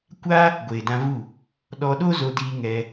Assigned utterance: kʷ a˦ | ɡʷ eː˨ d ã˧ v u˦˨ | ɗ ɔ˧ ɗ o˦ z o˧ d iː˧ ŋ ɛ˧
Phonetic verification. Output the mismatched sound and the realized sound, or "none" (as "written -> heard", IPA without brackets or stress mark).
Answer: none